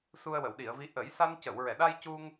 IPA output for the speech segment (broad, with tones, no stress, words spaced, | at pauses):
su˧ə̯wə˨˩˨wɗi˨˩˨ə̯vi˧˥ ʔə˨˩˦jsa˧n cə˨˩˨wɹɛ˨˩˨ɗa˧jcu˧ŋ